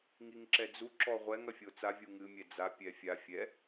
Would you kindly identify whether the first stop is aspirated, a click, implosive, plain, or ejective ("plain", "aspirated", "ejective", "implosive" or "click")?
click